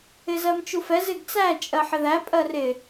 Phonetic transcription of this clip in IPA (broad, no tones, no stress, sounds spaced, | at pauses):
ɪ z ɜ m t͡ʃ u f ɛ z ɪ ɡ t͡s æ t͡ʃʼ ɜ ħ ɪ ð æ pʼ ɜ r ɪ